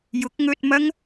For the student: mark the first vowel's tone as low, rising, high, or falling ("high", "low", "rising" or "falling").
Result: rising